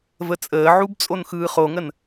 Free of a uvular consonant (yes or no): no